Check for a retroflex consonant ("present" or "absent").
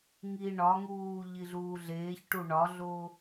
present